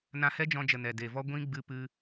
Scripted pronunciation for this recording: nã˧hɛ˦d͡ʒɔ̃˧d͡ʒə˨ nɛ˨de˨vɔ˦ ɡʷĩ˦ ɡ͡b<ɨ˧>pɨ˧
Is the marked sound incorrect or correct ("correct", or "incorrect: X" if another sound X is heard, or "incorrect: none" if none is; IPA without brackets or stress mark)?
correct